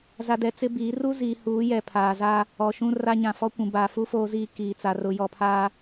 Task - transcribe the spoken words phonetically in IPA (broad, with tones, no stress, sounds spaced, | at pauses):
z a˦ d ɛ˦ t͡s ɪ˦ b iː˨˦ r u˦ z iː˨ h uː˨˦ j ɛ˨ pʰ aː˨ z a˦ | ɔ˨ ʃ ũ˦ r a˦ ɲ ã˨ f ɔ˦ kʷ ũ˨ b aː˨ f u˦ f oː˦ z iː˦ k iː˨ t͡s a˨ r ʊ˨ j ɔ˨ pʰ aː˦